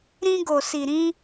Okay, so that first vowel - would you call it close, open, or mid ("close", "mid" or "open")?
close